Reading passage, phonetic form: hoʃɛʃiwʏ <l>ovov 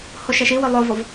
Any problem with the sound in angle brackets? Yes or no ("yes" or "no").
yes